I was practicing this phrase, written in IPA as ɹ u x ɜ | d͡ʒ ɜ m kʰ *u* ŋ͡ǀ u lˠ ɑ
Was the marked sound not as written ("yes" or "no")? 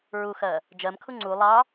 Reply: no